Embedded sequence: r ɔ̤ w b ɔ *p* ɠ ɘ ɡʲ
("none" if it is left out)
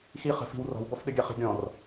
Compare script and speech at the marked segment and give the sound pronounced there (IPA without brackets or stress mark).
f